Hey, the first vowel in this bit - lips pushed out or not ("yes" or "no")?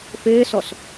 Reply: no